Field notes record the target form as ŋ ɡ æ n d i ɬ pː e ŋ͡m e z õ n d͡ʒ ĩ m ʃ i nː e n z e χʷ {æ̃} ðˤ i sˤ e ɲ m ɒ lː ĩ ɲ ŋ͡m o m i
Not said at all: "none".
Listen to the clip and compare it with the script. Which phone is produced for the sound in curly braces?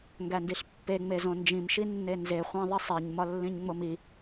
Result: æ̃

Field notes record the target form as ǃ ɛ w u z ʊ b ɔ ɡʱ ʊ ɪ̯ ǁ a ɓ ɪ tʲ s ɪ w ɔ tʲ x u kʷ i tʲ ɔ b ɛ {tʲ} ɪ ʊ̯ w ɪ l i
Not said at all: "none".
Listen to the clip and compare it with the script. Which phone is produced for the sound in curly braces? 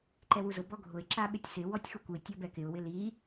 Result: k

